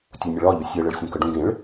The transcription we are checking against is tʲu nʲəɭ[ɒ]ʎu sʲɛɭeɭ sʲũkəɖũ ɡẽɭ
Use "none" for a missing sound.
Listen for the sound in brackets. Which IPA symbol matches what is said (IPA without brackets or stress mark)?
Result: ɒ